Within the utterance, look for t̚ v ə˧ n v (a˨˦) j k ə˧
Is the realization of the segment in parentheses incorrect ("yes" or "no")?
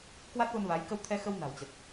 no